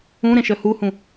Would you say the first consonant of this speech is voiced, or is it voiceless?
voiced